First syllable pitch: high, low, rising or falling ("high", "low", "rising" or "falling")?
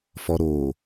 low